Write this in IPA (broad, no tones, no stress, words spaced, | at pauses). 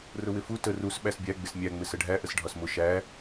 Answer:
rʊwɪfu tə rus ɓæsbʲæ ɡ͡bɪsmʲæ ŋ͡mɪsəɖʱæ ʔəsɖʱɒsmʊ ʃæ